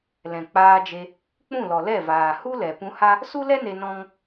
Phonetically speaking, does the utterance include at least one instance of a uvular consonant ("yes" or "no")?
no